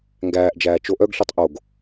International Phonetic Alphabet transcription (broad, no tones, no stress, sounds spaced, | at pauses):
ŋ ɡ æː ʔ d͡ʒ æː t͡ʃ o ʔ œ ɡ ɬ y tˤ ʔ o ɡ